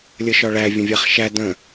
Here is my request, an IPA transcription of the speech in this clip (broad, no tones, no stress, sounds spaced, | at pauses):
lʲ ə ʃ ɒ ɭ æ vʲ ə̃ vʲ a χ ʃ æ d ə̃